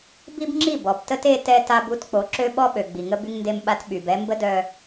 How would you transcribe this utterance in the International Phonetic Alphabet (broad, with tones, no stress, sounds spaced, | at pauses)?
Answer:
b i˦ b ŋ͡ǁ i˦˨ b ɔ˨ b t ə˦ t e˦ t ɛ˦ t a˦ b u˦ t k͡p o˨˦ ǁ ø˦ ɓ ɔ˦ ɓ ø˨ ɡ͡b i˨ ŋ ə˦ b y˦ ŋ n d e˦ m ɓ a˦ t ɓ y˨ b ɛ˦ m b ə˦ d œ˨